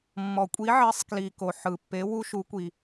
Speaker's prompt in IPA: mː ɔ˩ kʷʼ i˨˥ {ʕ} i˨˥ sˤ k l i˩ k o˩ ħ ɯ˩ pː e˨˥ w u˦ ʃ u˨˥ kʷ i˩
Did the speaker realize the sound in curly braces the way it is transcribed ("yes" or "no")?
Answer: yes